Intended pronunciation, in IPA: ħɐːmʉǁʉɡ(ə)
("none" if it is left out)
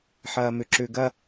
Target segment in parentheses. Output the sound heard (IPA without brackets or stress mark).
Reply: ɐ